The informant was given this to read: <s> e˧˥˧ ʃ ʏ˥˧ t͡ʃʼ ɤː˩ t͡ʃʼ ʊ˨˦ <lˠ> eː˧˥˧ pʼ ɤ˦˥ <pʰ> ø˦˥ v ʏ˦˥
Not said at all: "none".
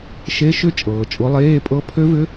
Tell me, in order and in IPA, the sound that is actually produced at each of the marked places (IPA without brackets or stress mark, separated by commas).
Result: ʃ, lˠ, pʰ